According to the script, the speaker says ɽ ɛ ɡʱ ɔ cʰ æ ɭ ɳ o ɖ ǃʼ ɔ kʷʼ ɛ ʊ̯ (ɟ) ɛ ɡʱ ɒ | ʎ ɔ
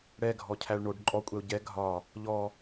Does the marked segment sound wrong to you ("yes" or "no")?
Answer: no